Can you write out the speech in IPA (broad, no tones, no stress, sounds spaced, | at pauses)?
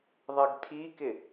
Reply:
ðˤ ɪ ɡ tʰ i k ɪ